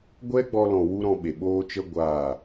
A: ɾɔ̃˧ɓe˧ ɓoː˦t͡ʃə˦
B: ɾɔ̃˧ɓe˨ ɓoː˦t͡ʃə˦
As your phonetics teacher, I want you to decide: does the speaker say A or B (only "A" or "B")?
B